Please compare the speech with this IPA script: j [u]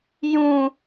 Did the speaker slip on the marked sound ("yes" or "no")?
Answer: yes